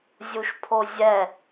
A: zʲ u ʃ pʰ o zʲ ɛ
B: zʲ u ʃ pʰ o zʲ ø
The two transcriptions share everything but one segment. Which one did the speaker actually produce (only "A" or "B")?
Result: A